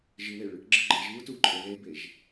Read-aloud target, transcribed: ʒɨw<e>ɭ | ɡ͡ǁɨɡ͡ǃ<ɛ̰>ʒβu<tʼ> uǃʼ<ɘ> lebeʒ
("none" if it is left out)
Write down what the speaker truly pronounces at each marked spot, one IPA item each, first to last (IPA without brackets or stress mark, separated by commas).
e, ɛ, t, ɘ